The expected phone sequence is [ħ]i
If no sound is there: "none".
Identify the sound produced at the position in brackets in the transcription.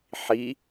ħ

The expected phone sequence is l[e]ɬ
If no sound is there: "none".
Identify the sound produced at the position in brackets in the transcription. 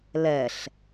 ɛ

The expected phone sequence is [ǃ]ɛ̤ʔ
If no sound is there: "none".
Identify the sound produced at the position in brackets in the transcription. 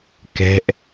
k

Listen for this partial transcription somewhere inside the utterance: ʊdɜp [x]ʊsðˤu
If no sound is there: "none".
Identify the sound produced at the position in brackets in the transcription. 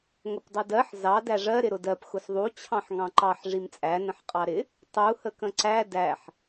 x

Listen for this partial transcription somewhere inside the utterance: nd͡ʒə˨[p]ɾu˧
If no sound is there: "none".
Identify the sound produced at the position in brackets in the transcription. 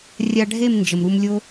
m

